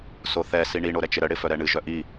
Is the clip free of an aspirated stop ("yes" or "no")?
yes